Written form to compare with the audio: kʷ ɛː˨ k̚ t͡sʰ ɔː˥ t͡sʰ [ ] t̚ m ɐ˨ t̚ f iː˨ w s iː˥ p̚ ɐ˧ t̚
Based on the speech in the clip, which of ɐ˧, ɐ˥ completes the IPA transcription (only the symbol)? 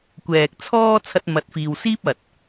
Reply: ɐ˧